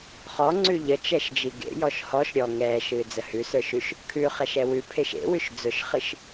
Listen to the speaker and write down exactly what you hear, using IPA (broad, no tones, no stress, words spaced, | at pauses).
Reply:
χɔŋ͡ǀʉ ʎət͡ʃɛʃd͡ʒi ɡḛjɔʃ hɔʃ ɾʲɔ ŋɛːʃɨːd͡zə hʉsə˞ʃʉʃ | kʰʉχɛʃɛ wʉpʰeʃ ḛwʉʃ d͡zʊʃχɨʃ